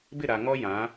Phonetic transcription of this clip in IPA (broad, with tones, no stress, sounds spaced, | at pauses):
b ɪ˦˨ ɾ a˨ ŋ ɔ˦ j ã˨˦